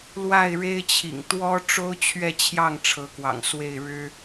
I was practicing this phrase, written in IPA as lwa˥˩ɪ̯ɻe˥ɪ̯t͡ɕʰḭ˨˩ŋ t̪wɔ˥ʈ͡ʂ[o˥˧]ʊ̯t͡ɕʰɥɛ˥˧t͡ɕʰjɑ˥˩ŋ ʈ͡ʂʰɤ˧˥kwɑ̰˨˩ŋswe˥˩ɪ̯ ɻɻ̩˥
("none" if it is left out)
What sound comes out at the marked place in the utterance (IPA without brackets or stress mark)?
o˥